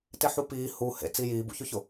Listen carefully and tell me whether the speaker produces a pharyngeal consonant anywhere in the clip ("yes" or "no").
yes